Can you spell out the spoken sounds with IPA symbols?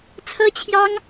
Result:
t͡sʰ ɤ˥ t͡ɕʰ j ɑ˥ ŋ

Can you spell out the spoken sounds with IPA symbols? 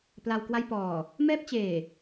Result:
p l a˧ w k w a˥˩ j p ɔː˨˩ | m ɛː˥˩ p̚ t͡ɕ eː˨˩

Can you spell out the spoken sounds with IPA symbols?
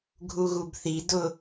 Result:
ɡʱ u ɣ u b θ i d ʊ

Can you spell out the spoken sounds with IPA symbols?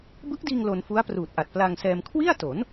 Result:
b ɯ˦˥ k̚ d iː˧ ŋ l o˧ n f u˦˥ a̯ p r uː˨˩ t̚ ʔ a˨˩ t̚ p l a˧ ŋ s ɛː˧ m kʰ w i˥˩ a̯ t o˩˦ n

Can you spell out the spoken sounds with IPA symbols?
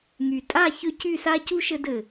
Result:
ŋ y˨ tʼ a˦˨ ç ʏ˧ c y˦˨ s a˦ c u˦ ʃ ɘ˧ d ɘ˨

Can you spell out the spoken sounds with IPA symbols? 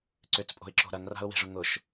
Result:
ǀ ʏ t͡s pʼ o̤ ɪ̯ ǁ o̤ ɾ ɐ ŋ r a̤ ʊ̯ w e̤ ʐ ʊ ŋ ʊ ʃ

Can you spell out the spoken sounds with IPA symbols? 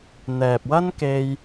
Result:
n̪ ɛː˨ p̚ w ɐ˥ n k e˧ j

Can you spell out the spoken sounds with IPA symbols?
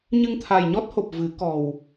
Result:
ɲ ɨ˧ ŋ t̪ʰ a˨˩ j ɲ ɔ˦˥ t̚ h o˨˩ p̚ v ɨ˨˩˦ k ɔ˨˩ w

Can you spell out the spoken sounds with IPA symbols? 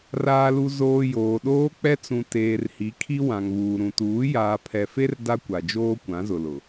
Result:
r aː˨ l u˨ z oː˨ j oː˨ ɗ oː˦ k͡p ɛ˦ t͡s ũ˨ t eː˨ r h i˨˦ kʰ i˦ w ã˨ ŋ β uː˨ ɾ ũ˨ t uː˨˦ j aː˨ pʰ ɛ˨ f e˦ r d a˦ kʷ a˨ d͡ʒ oː˦ kʷ ã˨˦ z ʊ˨ l ʊ˨

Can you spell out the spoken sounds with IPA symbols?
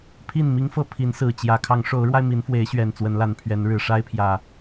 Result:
pʰ i˥˨ n m i˦ ŋ f ɤ˥˨ pʰ i˨˦ n s ɹ̩˨˩ t͡ɕ j ä˨˦ kʰ ɑ˨˦ ŋ ʂ o˨˦ ʊ̯ ɻ w a˧ ɪ̯ m i˨˦ n f w e˨˦ ɪ̯ ɕ ɥ ɛ˨˩ n t͡s w ə˨˦ n l a˨˦ n pʰ ɥ ɛ˨˦ n ɻ ɻ̩˨˩ ʂ a˦ ɪ̯ pʰ j ä˨˩

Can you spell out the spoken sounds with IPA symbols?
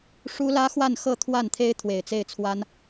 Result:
ʂ u˥ l ä˥ x w a˥˧ n x ɤ˥˧ t̪ʰ w a˥˩ n t̪ʰ e˥ ɪ̯ t̪ʰ w e˨˩ ɪ̯ t͡s e˥˩ ɪ̯ t͡sʰ w a˥ n

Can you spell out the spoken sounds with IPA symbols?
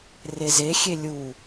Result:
r e z e xʲ e lʲ u

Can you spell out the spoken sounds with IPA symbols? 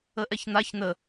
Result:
ə ʔ ɛ ç n̪ a ç n̪ ə

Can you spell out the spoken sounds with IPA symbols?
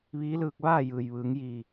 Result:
ʋ iː˧˥ l ɯː˧ k̚ ʋ aː˥˨ j ɯː˩ j ʋ ɯː˩˧ ŋ j iː˧˩

